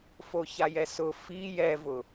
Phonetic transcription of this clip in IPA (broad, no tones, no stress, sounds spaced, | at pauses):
f o ç a j ɛ s ʊ f i j ɛ v ʊ